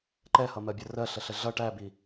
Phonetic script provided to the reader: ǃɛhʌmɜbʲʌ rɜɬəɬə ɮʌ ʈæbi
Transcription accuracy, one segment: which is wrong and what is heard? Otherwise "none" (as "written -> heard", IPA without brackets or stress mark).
none